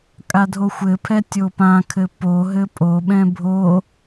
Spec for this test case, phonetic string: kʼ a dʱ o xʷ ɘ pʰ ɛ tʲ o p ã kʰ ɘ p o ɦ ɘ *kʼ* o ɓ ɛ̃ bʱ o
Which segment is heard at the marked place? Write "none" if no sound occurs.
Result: pʼ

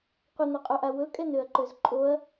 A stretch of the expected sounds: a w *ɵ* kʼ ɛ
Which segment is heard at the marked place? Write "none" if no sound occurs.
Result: ɵ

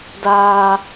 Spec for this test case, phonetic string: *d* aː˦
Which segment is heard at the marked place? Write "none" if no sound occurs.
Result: d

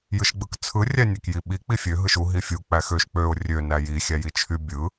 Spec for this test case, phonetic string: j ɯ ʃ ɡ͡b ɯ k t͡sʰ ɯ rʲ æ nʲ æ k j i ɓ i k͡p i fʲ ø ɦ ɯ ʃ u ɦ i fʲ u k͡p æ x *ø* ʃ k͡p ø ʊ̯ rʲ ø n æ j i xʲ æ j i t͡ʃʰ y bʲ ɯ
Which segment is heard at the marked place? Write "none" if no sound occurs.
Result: ø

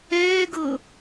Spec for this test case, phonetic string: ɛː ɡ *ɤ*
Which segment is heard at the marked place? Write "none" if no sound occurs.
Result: ɤ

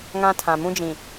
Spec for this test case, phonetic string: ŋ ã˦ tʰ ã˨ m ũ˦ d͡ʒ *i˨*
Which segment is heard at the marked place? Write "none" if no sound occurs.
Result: ĩ˨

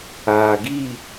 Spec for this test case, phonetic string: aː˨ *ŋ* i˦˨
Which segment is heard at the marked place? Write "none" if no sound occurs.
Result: ɡ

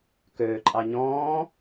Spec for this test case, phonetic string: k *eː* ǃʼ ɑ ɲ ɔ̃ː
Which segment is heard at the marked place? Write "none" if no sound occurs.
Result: øː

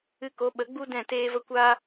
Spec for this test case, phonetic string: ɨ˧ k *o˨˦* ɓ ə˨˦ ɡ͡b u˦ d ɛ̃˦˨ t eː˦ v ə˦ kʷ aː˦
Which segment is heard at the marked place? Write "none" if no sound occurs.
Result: o˨˦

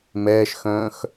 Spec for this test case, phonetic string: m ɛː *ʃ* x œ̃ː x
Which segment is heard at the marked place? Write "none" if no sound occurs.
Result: ʃ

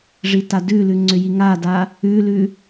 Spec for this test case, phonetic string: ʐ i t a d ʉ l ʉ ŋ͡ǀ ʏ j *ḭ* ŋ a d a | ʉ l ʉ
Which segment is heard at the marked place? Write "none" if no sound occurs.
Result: i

